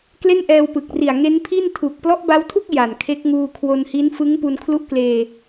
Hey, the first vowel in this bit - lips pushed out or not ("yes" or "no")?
no